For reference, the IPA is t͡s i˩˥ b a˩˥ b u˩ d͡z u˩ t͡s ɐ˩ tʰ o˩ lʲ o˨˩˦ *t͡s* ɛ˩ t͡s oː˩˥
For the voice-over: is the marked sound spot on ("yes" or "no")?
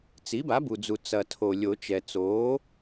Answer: no